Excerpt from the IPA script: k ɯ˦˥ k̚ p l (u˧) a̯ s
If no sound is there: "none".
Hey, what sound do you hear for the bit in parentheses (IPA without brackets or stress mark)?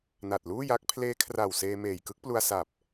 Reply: u˧